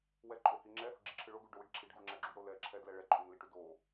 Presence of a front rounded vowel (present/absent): absent